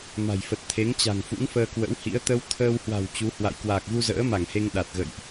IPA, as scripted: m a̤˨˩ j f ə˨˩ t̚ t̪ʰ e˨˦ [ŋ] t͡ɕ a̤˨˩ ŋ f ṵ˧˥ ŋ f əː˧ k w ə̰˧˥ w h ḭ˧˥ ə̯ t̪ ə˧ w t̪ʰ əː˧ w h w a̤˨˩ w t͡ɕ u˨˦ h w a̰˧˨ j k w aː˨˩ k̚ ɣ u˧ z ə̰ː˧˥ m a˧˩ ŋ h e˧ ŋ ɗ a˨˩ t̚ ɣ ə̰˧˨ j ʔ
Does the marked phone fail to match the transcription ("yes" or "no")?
no